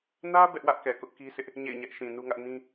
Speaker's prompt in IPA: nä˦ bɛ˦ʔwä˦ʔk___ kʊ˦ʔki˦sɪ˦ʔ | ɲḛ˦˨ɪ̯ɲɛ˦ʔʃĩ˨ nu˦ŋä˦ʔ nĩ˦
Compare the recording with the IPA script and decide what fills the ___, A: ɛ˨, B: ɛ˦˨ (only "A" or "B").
A